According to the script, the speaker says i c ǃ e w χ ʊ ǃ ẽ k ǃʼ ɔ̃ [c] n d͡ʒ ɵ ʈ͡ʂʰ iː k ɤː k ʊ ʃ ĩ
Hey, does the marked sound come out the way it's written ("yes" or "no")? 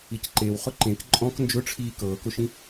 no